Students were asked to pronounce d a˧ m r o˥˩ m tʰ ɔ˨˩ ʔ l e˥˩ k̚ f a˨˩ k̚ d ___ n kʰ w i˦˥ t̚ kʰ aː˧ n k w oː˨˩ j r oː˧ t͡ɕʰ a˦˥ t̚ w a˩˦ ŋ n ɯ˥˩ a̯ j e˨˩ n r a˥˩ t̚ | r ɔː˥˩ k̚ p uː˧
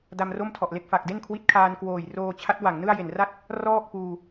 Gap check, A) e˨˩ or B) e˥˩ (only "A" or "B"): B